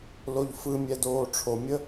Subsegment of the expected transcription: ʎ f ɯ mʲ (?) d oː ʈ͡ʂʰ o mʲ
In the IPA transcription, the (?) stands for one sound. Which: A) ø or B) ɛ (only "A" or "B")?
B